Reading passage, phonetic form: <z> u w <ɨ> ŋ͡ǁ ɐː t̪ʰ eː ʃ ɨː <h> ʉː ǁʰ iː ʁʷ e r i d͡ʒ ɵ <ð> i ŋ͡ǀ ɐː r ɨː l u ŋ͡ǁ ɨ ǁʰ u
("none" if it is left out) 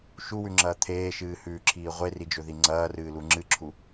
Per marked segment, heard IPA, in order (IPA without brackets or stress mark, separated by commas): ʃ, ʉ, h, ð